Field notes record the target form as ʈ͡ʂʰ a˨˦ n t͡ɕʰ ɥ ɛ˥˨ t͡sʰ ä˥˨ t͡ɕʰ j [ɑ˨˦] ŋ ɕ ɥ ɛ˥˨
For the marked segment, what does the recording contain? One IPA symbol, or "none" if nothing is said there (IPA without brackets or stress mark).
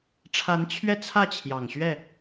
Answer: ɑ˨˩